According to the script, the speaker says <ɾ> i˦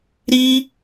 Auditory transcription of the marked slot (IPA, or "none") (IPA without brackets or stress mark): ɾ